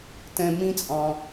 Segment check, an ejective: present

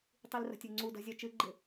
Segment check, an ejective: absent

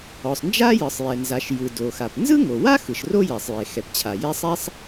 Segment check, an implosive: absent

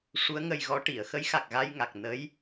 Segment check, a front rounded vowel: absent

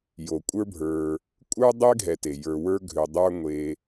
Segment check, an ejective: present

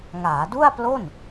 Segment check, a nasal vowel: absent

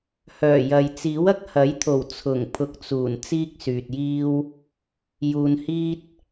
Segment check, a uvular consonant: absent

